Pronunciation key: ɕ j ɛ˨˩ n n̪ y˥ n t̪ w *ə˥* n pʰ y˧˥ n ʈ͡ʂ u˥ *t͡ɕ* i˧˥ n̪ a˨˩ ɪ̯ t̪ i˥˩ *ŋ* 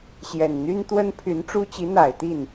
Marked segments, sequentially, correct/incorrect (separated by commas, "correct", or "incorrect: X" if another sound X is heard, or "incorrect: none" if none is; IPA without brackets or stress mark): correct, correct, incorrect: n